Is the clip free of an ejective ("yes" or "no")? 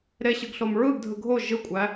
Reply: no